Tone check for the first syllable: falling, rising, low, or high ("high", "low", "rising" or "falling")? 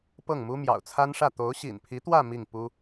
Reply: falling